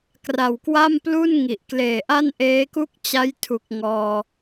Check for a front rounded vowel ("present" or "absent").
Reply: absent